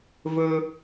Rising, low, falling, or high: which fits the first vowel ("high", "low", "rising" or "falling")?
low